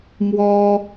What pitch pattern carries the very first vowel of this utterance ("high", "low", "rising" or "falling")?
high